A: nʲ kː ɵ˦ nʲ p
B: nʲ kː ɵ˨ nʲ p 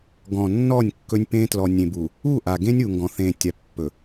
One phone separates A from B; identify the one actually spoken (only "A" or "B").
A